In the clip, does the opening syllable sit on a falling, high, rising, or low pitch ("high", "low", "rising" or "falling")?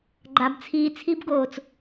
low